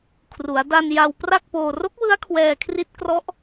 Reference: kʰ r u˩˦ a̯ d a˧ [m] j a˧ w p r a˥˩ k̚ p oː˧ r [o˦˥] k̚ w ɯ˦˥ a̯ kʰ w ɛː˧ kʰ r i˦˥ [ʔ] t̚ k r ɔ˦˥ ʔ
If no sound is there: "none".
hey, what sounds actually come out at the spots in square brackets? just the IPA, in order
n, o˦˥, none

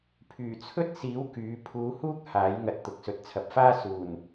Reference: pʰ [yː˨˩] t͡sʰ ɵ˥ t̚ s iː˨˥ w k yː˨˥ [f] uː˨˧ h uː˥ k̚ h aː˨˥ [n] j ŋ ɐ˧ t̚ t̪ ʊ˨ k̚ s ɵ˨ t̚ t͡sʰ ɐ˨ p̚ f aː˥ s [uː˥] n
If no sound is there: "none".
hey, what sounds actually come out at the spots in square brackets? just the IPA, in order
yː˨˩, pʰ, none, uː˨˩

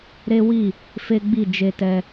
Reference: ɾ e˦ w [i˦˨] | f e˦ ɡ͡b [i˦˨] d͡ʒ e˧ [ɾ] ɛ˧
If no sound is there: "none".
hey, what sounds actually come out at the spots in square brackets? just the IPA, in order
i˦˨, i˦˨, t

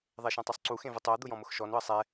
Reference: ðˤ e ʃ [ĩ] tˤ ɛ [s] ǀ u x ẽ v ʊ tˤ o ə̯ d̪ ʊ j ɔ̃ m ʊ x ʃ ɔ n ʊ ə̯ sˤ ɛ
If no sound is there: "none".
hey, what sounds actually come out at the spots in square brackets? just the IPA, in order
ẽ, sˤ

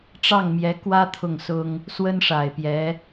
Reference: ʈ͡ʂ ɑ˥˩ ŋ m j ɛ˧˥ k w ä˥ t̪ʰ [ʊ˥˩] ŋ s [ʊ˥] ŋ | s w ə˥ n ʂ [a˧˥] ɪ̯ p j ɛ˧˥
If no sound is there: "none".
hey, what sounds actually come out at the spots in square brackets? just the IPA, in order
ʊ˥˩, ʊ˥, a˨˩

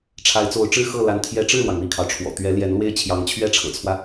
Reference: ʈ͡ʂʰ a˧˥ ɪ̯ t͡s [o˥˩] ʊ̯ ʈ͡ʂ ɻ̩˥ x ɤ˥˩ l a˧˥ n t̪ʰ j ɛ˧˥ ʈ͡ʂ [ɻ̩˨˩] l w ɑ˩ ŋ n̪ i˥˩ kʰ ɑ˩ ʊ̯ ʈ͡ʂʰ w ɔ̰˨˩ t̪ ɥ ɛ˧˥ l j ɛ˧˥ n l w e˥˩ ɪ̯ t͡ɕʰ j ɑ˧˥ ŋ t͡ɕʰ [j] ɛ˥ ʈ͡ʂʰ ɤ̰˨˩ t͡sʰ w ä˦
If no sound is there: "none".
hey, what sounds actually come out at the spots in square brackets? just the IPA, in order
o˧˥, ɻ̩˥˩, ɥ

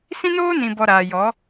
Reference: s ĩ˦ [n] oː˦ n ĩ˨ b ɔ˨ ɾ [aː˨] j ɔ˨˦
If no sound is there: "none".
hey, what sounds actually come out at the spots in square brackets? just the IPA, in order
n, aː˨

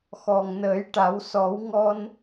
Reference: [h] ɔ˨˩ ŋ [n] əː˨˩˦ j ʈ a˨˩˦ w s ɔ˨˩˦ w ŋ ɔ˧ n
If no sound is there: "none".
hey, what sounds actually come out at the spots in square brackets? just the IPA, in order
x, n

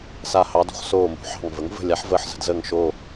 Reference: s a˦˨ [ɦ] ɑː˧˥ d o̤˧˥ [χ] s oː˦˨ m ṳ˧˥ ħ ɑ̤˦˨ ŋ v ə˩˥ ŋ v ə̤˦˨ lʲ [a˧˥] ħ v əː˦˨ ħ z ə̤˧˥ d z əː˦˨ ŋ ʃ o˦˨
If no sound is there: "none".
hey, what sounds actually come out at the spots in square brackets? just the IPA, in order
h, χ, a˧˥

